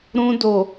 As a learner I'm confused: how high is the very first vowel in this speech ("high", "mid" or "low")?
high